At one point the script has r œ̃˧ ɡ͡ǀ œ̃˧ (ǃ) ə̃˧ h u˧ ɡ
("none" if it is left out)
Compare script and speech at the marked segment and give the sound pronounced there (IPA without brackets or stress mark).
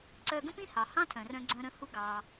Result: ɾ